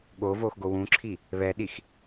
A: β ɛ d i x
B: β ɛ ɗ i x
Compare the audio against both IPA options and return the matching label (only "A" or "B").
B